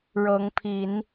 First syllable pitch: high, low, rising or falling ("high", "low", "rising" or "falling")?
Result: rising